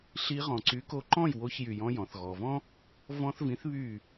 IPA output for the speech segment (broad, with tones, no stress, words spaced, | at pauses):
ɬi˧ ʁɔ̃˩ǀy˩˥ko˧ǃɔ̃˥˩j wo˧çjy˩ jɔ̃˧jɔ̃˩θɣɔ˩vɔ̃˥ | vɔ̃˧θvĩ˩˥θ βy˥˩